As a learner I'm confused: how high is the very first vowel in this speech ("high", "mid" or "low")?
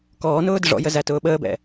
mid